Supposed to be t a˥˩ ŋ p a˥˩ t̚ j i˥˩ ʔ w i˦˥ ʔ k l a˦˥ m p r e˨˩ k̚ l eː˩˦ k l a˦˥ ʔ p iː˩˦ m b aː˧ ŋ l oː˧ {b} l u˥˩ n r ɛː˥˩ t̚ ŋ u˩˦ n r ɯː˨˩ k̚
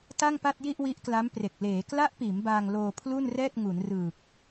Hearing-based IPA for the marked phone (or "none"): pʰ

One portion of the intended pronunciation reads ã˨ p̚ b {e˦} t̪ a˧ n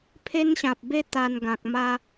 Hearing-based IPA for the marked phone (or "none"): e˦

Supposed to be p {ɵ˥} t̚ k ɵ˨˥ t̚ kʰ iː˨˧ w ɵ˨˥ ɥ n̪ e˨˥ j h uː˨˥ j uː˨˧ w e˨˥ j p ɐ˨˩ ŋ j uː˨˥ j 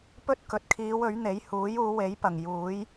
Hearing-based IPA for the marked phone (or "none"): ɵ˥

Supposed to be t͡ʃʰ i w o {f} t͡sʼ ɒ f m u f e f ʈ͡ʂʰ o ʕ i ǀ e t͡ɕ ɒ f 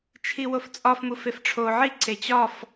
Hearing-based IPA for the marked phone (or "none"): f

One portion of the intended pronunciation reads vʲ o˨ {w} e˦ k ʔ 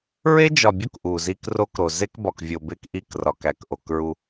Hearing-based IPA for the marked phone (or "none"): b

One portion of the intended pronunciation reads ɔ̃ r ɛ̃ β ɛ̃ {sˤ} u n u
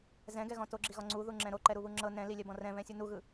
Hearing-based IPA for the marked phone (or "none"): sʲ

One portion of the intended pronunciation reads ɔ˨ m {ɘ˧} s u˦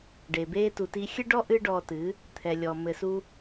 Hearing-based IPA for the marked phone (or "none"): ɘ˧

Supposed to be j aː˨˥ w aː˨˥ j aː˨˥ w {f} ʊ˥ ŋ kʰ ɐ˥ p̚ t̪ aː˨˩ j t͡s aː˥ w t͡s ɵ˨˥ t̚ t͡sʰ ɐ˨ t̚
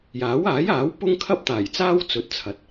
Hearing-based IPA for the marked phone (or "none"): p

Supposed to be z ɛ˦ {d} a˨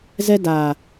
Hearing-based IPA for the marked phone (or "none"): d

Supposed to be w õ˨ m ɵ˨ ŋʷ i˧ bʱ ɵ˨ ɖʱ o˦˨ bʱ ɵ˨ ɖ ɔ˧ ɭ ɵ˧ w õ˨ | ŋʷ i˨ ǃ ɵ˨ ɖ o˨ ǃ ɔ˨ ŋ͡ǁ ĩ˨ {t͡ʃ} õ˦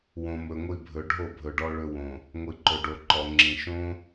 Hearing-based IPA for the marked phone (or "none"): ʃ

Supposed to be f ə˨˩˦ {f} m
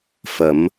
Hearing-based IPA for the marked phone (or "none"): none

